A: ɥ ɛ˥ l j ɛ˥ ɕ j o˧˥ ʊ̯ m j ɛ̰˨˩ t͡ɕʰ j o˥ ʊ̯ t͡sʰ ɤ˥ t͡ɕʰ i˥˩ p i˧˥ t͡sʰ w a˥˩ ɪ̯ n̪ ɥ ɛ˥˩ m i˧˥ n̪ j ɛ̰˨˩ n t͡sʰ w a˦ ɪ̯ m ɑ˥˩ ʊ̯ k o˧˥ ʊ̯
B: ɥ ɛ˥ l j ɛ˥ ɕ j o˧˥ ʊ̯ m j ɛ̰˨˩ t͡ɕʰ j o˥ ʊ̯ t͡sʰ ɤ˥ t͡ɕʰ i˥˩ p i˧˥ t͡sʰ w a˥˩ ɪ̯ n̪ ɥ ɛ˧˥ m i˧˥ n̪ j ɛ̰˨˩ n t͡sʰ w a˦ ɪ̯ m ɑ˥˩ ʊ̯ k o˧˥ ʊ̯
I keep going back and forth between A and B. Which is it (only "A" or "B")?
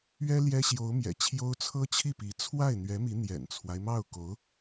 B